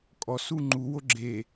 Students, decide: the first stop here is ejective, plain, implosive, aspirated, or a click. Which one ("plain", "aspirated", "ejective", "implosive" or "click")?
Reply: ejective